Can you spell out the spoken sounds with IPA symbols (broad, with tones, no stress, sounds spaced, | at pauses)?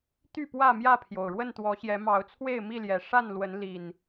t̪ y˥˨ p w ä˥˨ m j ä˥˨ pʰ j o˩ ʊ̯ ɻ w ə˥˨ n t̪ w ɔ˨˦ ɕ j ɛ˨˦ m ɑ˨˦ ʊ̯ t͡sʰ w e˥˨ ɪ̯ m i˥˨ l j ɛ˨˩ ʂ a˥˨ n l w ə˨˦ n l i˨˩ n